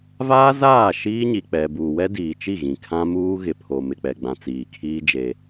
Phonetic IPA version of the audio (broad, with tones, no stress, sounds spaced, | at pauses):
v aː˦ z aː˦˨ ʃ iː˦ ɲ i˨ k͡p ɛ˨ b uː˨ w ɛ˦ d iː˨ t͡ʃ i˦˨ ɣ ĩ˨ kʰ ã˦ m uː˦ ɣ ɪ˨ pʰ o˨ m ɪ˨ k͡p ɛ˨ ɡ͡b ã˨ t͡s iː˨ kʰ iː˦ d͡ʒ e˦